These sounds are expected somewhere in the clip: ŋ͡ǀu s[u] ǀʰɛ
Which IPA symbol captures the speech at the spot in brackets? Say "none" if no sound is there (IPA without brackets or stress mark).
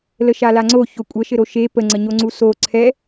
o